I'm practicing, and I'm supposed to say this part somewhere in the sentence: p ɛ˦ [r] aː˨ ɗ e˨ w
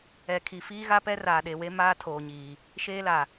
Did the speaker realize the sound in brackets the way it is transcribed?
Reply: yes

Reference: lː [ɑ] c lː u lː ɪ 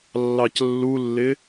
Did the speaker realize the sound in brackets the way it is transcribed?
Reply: yes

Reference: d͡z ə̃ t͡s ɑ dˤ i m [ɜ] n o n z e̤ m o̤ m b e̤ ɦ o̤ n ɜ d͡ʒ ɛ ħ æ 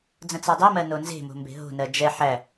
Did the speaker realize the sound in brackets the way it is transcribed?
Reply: yes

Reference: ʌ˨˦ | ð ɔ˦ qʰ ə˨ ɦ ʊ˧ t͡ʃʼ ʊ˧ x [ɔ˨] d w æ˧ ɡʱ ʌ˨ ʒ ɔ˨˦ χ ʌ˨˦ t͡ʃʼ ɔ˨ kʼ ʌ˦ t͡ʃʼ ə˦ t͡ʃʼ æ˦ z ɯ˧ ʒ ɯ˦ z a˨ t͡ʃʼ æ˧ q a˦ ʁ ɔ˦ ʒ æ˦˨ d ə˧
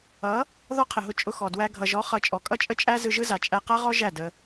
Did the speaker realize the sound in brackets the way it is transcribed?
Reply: yes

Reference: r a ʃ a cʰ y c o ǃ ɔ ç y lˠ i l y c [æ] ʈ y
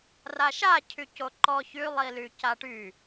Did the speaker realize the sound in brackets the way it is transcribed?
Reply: no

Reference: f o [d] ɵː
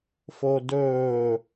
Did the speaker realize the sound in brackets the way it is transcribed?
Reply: yes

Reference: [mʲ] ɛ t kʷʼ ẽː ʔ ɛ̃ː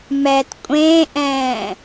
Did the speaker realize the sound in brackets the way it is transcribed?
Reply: no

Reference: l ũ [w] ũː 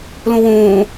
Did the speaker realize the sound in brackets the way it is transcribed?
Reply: yes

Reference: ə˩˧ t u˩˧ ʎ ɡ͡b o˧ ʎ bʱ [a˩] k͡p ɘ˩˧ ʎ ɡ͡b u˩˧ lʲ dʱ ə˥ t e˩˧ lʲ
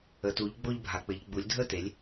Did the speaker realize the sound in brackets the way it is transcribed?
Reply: yes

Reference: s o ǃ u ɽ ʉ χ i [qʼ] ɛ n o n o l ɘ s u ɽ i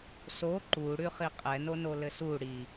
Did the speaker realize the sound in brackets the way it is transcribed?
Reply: yes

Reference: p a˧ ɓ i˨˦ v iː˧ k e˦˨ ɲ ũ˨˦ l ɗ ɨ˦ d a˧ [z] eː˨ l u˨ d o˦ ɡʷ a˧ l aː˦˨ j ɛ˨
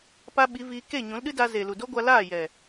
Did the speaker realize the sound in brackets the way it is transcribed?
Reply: yes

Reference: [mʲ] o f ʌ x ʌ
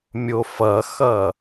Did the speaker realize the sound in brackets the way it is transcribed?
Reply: yes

